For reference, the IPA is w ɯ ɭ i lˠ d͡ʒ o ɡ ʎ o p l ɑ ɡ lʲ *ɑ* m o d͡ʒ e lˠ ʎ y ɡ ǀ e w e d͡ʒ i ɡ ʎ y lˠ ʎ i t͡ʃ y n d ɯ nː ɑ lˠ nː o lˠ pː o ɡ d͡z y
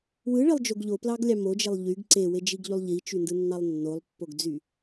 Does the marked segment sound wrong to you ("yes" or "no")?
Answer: no